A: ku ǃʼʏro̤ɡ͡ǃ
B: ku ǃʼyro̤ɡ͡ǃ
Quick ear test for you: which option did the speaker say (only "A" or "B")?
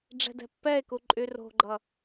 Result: B